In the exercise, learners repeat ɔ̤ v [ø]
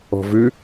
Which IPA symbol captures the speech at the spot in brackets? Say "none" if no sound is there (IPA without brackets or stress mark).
ø